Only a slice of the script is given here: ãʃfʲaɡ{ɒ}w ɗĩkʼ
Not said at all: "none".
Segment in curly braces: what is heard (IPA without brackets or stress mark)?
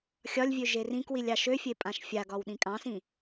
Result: ɒ